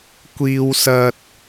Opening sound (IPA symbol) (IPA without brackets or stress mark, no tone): kʷ